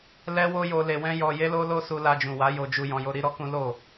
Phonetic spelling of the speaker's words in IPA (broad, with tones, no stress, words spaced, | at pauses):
lɛ˦wo˦jo˧ le˧wɛ̃˦ jɔ˧ je˦lo˦lo˦ su˧la˧d͡ʒũ˨wa˨˦ jo˧d͡ʒu˧ jɔ̃˧jo˦ ɾi˦ɾɔ˦kũ˦ lo˦˨